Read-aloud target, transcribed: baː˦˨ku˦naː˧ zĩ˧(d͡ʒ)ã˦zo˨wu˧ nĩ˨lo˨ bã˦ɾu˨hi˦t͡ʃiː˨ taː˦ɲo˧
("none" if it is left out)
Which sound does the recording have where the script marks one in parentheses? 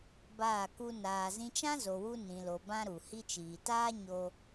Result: t͡ʃ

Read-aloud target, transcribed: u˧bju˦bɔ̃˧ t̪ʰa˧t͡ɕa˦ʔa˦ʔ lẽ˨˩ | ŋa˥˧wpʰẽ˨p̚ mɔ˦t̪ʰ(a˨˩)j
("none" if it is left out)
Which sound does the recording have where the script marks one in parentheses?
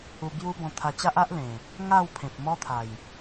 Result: a˨˩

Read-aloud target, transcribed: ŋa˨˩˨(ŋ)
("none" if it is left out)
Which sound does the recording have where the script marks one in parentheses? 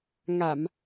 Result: m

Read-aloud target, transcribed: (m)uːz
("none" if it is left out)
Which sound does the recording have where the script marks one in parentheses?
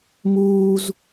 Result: m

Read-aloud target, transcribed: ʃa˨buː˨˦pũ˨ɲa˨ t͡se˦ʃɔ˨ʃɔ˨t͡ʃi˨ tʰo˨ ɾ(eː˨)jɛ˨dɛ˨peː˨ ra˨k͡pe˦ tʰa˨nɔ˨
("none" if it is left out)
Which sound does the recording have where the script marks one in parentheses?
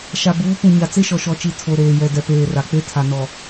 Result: eː˨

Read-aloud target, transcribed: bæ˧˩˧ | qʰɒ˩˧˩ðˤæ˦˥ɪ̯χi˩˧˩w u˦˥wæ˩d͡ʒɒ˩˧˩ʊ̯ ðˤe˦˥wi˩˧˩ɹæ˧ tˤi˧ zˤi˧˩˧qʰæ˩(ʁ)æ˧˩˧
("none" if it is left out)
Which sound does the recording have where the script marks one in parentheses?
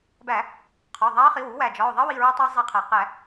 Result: q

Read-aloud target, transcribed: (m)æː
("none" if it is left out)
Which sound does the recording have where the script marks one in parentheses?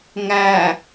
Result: ŋ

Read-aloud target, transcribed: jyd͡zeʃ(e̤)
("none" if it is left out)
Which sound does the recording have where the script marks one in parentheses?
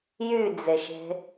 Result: e̤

